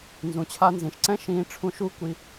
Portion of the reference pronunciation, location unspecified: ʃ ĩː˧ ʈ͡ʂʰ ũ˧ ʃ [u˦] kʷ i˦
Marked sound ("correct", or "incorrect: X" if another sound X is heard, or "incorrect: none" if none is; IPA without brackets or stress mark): correct